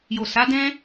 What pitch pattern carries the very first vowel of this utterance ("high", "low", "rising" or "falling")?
low